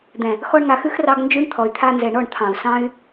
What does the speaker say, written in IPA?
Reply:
d̪ɛ̃˨ | xɔ˧ɳŋa˨xʉ˦xrɑ˧ɡ nd͡ʒʉ˦ɳt̪ʰɔ˨y̯ t̪ʰa˧nzɛ˨ɳɔ˦˨ɳ t̪ʰɑ̃˨u̯sɑ̃˦y̯

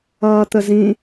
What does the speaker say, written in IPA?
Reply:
ʌːt̪əzĩ

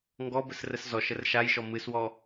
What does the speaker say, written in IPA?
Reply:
ŋɡɔbəsrəs zɔʃər ʃajʃɔ mɨswɔ

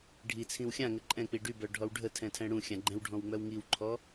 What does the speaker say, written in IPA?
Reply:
ɖʱi t͡sʰĩwxʲãŋə ǃʼɛ̃k͡pi ɖybœ ɖʱɔwɖʱətʰɛ̃ tʰɛ̃ɽũxʲã ɡ͡ǃɛ̃wɖʱɔ̃w ŋ͡mœwŋiwǃʰɔ

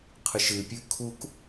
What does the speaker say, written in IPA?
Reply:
qʰɨʃɨpʲʉ kʰuk

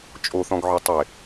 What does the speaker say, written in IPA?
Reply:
t͡ʃʼoθɔ̃ɡʕœ tˤɪ

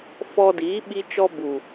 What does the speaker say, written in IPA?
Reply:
fɔ˧ diː˨˦ɓi˧t͡ʃɔ˧ bu˨

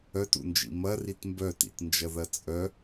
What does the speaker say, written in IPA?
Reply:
œtṵnd͡ʒḭ mɐrit mbœtḭtnd͡ʒɐðɐ t͡sʼœ

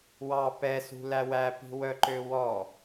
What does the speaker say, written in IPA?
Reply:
wɑ pɛsṳ læwæpi̤ wœǃøwɔ

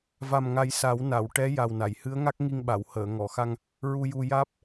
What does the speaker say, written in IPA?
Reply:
va˨˩mŋa˨˩˦j sa˨˩˦wna˨˩˨w ʈɛ˧˥ ja˨˩wna˨˩˨jhɨ˧˥ə̯ŋa˦˥k̚ ŋi˧ŋɓa˨˩˨w həː˨˩˨ ŋɔ˨˩˨xa˧ŋ | ɹu˧ju˧ jaː˦˥p̚

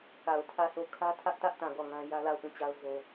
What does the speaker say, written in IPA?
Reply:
ka˨ʊ̯tʰä˦˨sʰo˦˨ kʰä˦tʰä˦ʔtä˦ʔtã˨ ɡɔ˦˨ŋã˦ jä˦la˦˨ʊ̯pũ˦˨t͡ɕa˦ʊ̯ zo˦

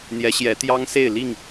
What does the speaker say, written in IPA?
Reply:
n̪jɛ˨˦ɕjɛ˨˦ t̪jɑ˦ŋse˥˨ɪ̯ li˥˨ŋ

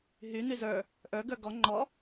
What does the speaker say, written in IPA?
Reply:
ɦy n̪yzə˞ | ʔə˞ ɡə˞ɡɔ ŋ͡ǃɔ

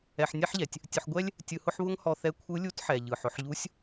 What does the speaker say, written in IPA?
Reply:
ɛ˧ħnʲɛ˥ħʎɛ˩tʲ | tʲʊ˧ħɡʷɛ˥lʲ | tʲɯ˧hʊ˥ħ βʊ˥ŋhɔ˧θɛ˧˥ kʷʰɯ˧˥lʲu˧˥tħɛ˩ ʎɯ˩ħʊ˩˧ħʎu˧˥sʲ

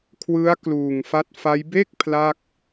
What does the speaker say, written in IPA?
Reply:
kʰwɯ˦˥a̯ kluː˨˩ŋfa˦˥t̚fa˦˥j be˥˩k̚ pʰla˥˩k̚

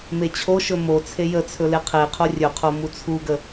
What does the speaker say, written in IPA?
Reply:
met͡ɕʰoʃɵ mo t͡sʰejət͡sʰɵ leqʰeqʰo rʲɵqʰo mut͡sʰuɡə

